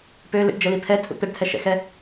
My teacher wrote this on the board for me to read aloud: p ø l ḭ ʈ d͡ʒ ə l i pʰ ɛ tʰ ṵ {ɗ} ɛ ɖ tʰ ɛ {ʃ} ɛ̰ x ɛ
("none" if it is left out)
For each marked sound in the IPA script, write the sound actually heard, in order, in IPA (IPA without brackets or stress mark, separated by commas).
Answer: t̪, ʃ